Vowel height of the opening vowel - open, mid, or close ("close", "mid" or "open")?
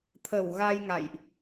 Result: mid